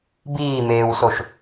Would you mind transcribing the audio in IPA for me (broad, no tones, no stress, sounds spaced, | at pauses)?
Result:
b iː m eː w s o ʃ